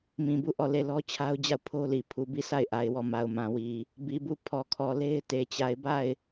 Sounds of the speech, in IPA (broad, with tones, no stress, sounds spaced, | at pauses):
m ĩ˨ b u˦˨ ʔ ɔ˦˨ l e˦˨ l ɔ˦ t͡ɕʰ a˦ ʊ̯ d͡ʑ a˦˨ ʊ̯ pʰ o˦ l i˨ pʰ u˨ b i˦˨ s a˦˨ ɪ̯ ʔ a˨ ɪ̯ w ɔ˦˨ m a˨ ʊ̯ m ã˨ w i˨ | b i˨ b u˦˨ pʰ ɔ˨ kʰ ɔ˨ l e˦ ɪ̯ t e˨ t͡ɕ a˨ ɪ̯ b a˦˨ ɪ̯